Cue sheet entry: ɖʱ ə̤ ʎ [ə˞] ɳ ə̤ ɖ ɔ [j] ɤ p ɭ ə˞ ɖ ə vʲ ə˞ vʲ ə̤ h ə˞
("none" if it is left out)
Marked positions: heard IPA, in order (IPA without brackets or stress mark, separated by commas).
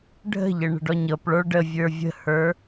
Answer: ə, ɲ